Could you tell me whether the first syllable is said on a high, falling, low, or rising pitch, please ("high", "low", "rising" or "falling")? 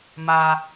high